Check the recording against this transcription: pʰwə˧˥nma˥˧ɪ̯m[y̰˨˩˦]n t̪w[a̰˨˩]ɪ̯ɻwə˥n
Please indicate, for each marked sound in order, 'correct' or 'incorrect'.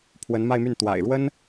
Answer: incorrect, correct

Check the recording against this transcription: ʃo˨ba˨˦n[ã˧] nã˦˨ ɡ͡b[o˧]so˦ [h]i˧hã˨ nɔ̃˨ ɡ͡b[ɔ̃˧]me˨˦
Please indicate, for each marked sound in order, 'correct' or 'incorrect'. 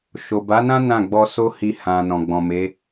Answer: incorrect, incorrect, correct, incorrect

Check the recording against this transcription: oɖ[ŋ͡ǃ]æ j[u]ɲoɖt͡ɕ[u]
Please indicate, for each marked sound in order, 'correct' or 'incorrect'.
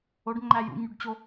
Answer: correct, incorrect, incorrect

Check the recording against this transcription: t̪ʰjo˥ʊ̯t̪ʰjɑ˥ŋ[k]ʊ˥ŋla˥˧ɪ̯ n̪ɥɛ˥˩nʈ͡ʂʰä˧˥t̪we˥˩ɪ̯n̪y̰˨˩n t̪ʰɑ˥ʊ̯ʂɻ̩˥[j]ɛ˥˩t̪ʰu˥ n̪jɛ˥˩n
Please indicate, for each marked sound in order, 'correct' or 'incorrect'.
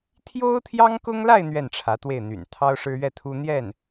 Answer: correct, incorrect

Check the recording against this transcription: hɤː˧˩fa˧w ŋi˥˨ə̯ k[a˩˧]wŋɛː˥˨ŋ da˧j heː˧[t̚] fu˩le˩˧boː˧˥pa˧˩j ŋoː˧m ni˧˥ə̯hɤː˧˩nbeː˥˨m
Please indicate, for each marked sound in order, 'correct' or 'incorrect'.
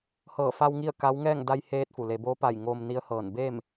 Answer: incorrect, correct

